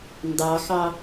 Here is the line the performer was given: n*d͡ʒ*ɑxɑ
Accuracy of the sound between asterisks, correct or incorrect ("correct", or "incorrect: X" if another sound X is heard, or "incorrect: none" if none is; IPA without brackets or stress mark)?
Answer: incorrect: d